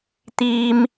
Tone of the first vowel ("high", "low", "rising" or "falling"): high